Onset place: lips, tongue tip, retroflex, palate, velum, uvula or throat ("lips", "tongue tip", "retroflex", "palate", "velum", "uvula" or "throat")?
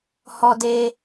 throat